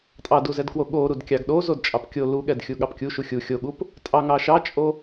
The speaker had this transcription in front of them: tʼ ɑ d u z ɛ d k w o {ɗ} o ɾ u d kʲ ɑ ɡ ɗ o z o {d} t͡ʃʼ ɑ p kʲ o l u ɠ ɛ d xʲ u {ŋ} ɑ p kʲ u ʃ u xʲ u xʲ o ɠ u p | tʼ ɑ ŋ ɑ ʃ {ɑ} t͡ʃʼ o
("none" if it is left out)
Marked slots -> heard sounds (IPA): ɠ, d, ɠ, ɑ

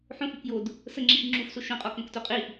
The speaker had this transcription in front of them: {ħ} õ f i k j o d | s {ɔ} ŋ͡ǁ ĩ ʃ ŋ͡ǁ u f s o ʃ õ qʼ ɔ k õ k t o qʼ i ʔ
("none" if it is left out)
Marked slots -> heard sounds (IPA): ħ, ə

